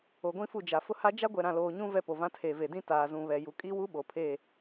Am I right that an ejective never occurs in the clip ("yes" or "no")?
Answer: no